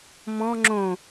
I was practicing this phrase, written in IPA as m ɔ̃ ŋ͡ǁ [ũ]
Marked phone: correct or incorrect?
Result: incorrect: õ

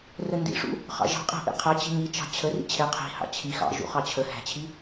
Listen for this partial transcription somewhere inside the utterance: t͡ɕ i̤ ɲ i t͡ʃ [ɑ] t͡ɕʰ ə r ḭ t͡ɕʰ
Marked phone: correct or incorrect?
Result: incorrect: ɑ̤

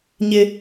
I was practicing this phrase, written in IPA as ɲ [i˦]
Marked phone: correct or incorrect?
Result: incorrect: ɪ˦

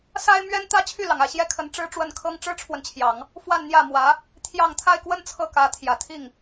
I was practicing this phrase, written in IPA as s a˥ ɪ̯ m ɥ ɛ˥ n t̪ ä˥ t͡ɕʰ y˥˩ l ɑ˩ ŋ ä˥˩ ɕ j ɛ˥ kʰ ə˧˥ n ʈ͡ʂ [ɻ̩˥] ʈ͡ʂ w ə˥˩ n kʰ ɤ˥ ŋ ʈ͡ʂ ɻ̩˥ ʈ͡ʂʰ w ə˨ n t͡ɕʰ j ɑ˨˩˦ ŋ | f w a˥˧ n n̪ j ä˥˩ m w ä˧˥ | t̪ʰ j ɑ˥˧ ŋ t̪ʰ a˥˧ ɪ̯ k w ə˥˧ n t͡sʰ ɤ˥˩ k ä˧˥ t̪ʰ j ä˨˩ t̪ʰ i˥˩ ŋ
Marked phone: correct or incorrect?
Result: correct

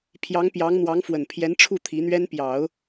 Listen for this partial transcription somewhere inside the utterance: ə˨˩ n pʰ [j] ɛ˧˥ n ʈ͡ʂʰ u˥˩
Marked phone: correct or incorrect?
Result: correct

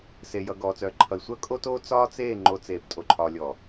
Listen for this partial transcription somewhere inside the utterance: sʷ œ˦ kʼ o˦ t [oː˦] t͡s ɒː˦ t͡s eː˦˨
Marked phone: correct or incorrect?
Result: correct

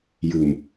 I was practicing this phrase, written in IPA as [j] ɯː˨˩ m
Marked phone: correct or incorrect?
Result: correct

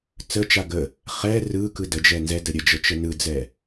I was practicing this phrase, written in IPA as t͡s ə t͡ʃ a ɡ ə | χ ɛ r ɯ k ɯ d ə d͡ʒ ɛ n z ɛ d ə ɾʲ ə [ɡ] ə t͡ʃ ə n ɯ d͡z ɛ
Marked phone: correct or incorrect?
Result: incorrect: d͡ʒ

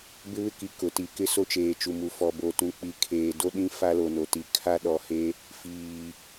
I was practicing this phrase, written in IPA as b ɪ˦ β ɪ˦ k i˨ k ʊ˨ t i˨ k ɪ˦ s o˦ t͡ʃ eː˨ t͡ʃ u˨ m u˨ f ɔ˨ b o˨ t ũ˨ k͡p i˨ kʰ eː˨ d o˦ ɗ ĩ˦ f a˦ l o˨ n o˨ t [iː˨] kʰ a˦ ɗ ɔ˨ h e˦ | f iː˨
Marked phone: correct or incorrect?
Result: incorrect: i˨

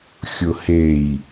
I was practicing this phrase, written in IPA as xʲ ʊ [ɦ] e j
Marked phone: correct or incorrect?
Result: incorrect: h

